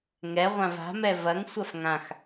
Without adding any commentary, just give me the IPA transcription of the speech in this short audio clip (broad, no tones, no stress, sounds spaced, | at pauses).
ŋ ɛ ʁʷ ã v a̤ m ɛ v ɐ ŋ sʷ ɐ f ŋ ã x